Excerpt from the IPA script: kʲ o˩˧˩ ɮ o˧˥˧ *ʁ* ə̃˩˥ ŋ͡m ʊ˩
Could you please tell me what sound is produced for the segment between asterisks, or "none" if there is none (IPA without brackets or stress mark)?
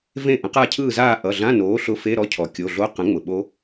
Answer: q